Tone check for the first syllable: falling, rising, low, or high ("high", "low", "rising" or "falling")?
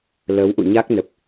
rising